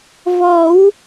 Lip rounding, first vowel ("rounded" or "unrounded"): rounded